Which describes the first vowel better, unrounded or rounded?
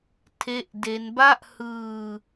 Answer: unrounded